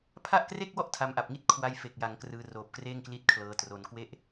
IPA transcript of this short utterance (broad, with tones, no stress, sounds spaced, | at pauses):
pʰ a˥˩ ʔ k r e˥˩ k̚ w ɔ˥˩ ʔ tʰ a˧ m ʔ a˨˩ p̚ ŋ i˥˩ t̚ kʰ w a˧ j f e˨˩ k̚ j a˩˦ ŋ k r ɯː˧ r oː˨˩ p̚ k r eː˥˩ ŋ k l i˦˥ t̚ kʰ l ɤː˧ t r o˧ n k w e˦˥ ʔ